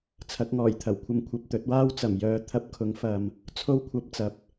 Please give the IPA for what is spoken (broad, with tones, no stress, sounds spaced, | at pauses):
t͡sʰ ɐ˨˥ k̚ ŋ ɔː˨˩ j t̪ʰ ɐ˨˩ w kʷʰ ɐ˧ m kʷʰ ɐ˨ p̚ t̪ ɵ˨˥ t̚ w aː˥ w t͡s ɐ˨˩ m j œː˧ t̪ʰ ɐ˧ p̚ kʰ ʊ˨˥ ŋ f ɐ˨ m | t͡sʰ o˥ w kʷʰ ɐ˧ p̚ t͡s ɐ˨˥ p̚